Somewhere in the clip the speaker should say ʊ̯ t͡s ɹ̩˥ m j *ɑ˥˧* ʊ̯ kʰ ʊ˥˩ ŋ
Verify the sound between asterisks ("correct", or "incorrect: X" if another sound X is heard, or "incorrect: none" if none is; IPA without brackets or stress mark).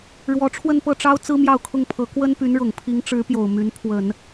correct